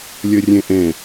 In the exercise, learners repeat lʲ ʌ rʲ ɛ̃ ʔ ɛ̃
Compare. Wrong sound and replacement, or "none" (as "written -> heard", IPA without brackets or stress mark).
none